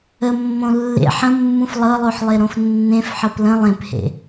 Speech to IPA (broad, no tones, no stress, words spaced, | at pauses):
əmːõ lːḛħ ə̃mːũf lˠɤlˠoħlˠeɾõf nːẽfħɤp lə̃ lˠẽphḛ